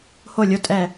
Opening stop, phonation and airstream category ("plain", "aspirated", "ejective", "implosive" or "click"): ejective